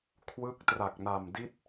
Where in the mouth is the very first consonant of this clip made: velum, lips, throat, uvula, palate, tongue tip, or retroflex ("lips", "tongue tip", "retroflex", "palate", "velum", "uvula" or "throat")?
velum